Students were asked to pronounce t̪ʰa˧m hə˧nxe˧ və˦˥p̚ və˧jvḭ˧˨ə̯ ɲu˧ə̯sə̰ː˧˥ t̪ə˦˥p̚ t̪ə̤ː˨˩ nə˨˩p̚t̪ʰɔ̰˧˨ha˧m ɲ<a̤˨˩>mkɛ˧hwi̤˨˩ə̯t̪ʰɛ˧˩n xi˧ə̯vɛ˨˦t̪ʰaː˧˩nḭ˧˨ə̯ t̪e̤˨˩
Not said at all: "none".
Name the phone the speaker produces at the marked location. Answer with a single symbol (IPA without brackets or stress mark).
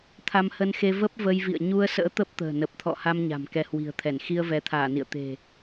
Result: a̤˨˩